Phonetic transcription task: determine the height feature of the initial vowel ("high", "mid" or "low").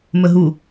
mid